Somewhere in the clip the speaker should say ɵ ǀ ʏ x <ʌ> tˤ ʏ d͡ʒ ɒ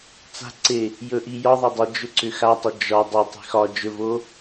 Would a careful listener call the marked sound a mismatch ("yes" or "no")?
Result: yes